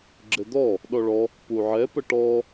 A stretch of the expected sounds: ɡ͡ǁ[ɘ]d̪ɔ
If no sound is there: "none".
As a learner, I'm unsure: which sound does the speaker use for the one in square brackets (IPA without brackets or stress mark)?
ɘ